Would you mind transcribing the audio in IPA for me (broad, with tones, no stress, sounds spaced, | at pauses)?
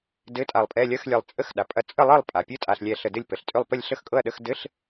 d ɘ˧˥˧ tʼ a˧˩ lˠ pʼ ɛ˧˥˧ lʲ ɐ˧˥˧ x lʲ ɛ˧˩ lˠ t͡sʼ ə˧˥˧ x ɗ a˩ pʼ ɐ˧˩ t͡sʼ ə˥˨ lˠ ɤ˥˨ lˠ pʼ a˩ pʲ ɘ˧˥˧ tʼ a˧˩ ɬ lʲ ɛ˧˩ ɬ ə˧˩ d ɘ˥˨ lʲ p ə˩ ɬ tʼ ʏ˥˨ lˠ p ə˥˨ lʲ ɬ ə˥˨ x kʼ ɤ˥˨ ɐ̯ ɗ ə˧˥˧ x d ɘ˧˥˧ ɬ